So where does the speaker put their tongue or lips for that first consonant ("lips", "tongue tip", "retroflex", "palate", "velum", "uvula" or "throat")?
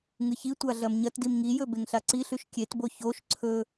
velum